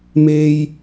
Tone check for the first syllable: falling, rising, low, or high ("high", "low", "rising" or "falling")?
high